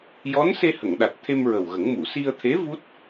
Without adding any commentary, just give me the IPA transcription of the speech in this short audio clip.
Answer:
jɔ˧˥n se˧hə˨˩˨ŋ ɗa˨˩t̚ t̪ʰe˧m ɹə˨˩wɣə˨˩˦ŋ mu˨˩˨si˧ə̯t̪ʰe˧˥ vu˦˥t̚

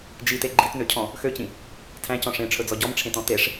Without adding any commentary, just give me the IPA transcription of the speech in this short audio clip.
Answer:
d͡ʒite ɡ͡ǃitnøcʰɔ̃ | xøcĩ | tʰæ̃cɔ̃ ʂẽʈ͡ʂʰɵd͡zɔ ɟɔmʈ͡ʂʰẽtɔ̃ teʂ

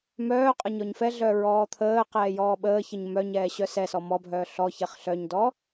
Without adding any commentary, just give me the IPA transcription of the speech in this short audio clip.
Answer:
mœːqʼə ɲɔɲfɛɮœ ɹɔːt̪ʰəːqɛː jɔːɓəːçəɲ mœɲɛː ɕœsɛsɔ mɔbʱœː ɬɔ çɛχɬœɲdɔ

